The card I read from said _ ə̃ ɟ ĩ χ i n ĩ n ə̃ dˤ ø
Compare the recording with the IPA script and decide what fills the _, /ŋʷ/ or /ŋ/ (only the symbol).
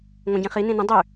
ŋʷ